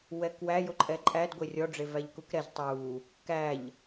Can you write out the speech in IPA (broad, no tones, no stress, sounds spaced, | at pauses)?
w ɛ k w æ j o ǃʼ ɛ ǃʼ æ d ɡʷ e rʲ ɔ ɖ͡ʐ e v æ ʎ k u k ɾ ɛ z tˤ u | k æ ʎ